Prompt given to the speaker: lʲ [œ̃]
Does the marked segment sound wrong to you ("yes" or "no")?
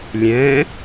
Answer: yes